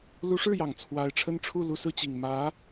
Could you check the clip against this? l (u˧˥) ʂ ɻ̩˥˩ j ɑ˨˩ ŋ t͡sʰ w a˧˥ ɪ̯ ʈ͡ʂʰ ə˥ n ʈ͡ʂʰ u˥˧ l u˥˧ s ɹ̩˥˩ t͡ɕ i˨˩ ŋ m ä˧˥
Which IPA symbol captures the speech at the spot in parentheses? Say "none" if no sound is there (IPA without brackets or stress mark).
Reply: u˧˥